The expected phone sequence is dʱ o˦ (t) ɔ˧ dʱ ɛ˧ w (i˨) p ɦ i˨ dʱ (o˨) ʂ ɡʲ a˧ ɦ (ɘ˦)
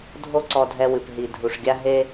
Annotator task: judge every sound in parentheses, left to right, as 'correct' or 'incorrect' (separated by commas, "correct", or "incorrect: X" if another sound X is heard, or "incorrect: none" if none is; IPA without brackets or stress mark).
incorrect: ǀ, incorrect: ɨ˨, incorrect: u˨, incorrect: e˦